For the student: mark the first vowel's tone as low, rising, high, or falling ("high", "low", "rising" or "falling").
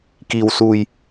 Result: low